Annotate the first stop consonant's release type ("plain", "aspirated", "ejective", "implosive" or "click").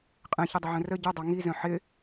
ejective